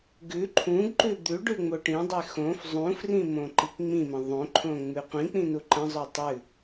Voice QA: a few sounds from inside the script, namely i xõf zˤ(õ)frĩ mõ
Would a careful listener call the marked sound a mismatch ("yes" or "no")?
yes